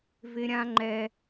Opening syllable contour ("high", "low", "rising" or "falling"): high